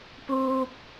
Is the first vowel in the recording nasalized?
no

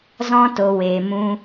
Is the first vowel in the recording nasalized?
yes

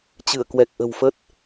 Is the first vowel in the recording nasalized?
no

